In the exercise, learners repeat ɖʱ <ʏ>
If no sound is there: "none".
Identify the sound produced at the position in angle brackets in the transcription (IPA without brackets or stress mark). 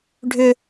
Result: ʏ